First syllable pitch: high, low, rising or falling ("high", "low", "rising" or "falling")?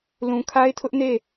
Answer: low